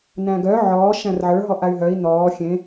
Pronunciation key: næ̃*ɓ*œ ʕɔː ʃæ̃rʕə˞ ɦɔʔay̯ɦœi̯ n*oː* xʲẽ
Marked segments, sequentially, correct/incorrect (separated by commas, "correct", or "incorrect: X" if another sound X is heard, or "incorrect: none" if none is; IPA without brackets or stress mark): incorrect: ɡ, incorrect: ɔː